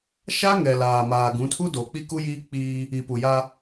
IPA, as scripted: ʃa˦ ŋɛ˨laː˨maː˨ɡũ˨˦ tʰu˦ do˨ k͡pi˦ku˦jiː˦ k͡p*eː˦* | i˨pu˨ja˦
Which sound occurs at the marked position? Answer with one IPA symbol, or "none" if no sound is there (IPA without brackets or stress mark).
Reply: iː˦